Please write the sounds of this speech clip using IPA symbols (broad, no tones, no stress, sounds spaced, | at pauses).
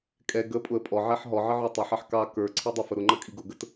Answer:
kʼ ɛ ɡ ə pʼ ʊ ə̯ pʼ ɔ ʕ ɛ ħ ɦ ɔ ʕ ɪ ʕ ʊ tˤ ɪ ħ ɑ ħ k ɑ k ə˞ ǀʰ ɛ dˤ ʊ f ə ɾ ʊ ŋ͡ǃ ʌ kʼ i ɡ ʊ ɡ ə t